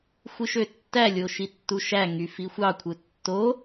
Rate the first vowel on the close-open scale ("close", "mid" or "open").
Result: close